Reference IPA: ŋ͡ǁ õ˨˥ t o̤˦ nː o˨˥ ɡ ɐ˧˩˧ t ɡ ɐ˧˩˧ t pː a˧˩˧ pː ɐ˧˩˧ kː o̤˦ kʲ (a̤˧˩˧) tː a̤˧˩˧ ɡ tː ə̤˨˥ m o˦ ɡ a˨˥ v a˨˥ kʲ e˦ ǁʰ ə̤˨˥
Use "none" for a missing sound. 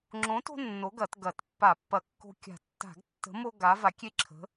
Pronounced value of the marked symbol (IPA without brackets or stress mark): a̤˧˩˧